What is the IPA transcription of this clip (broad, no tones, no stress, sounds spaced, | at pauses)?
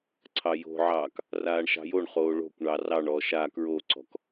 ǀʰ ɑ j o̤ ʕ ɑː k | r aː ɳ ʃ ɑ̤ j o ɳ χ oː ɭ o̤ kʷ ɳ ɑ r ɑ ɳ ɔː ʃ a k ɹ o ǀ ɔ̤ k